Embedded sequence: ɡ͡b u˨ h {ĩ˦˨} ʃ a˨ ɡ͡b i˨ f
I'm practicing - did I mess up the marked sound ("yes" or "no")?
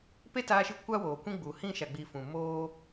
no